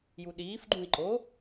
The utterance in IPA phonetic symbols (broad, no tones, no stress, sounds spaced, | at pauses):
j u ɗ iː f ɡ͡ǃ ũ i̯ ǃ o